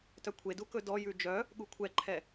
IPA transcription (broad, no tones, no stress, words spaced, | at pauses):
tœkʷʰedu kɵdɔjʉ d͡ʒœ | ɠukʷʰɛǃʰɛ